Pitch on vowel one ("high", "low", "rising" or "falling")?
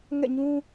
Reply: falling